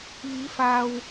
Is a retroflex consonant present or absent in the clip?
absent